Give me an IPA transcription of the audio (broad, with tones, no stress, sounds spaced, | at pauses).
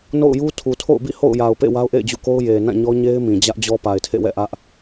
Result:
n o̰˦˨ ʊ̯ j u˦ tʰ u˨ tʰ o̰˦˨ ʊ̯ b ḭ˦˨ h o̰˦˨ ʊ̯ j a˨ ʊ̯ p ḛ˦˨ w a˦ ʊ̯ ʔ ḛ˦˨ ɪ̯ d͡ʑ ṵ˦˨ k o˦ ʊ̯ j e˨ n ã˦˨ ɲ ɔ˦ ɲ e˦ ɪ̯ m ĩ˨ d͡ʑ ä˦ ʔ d͡ʑ ɔ˦ p a˨ ɪ̯ tʰ ḛ˦˨ w ɛ̰˦˨ ʔ ä˦ ʔ